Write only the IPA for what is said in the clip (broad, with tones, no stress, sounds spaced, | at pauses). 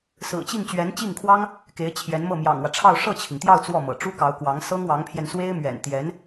s ɹ̩˨˩ t͡ɕ i˥˩ ŋ t͡ɕ ɥ ɛ˧˥ n t͡ɕ i˥˩ ŋ kʰ w ɑ˥ ŋ | k e˧˥ ɪ̯ t͡ɕʰ j ɛ˧˥ n m ɤ˥˩ m j ɑ̰˨˩ ŋ w ä˦ ʈ͡ʂʰ ɑ˥˧ ʊ̯ ʂ ɤ˥˩ t͡ɕʰ i˩ ŋ t̪ j ɑ˥˧ ʊ̯ t͡s w ɔ˥˩ m ɤ̰˨˩ ʈ͡ʂ u˥ k ɑ˧˥ ʊ̯ k w ɑ˧˥ ŋ s ɤ˥ ŋ w ɑ˧˥ ŋ pʰ j ɛ˧ n s w e˥ ɪ̯ m ɥ ɛ̰˨˩ n t̪ j ɛ˧˥ n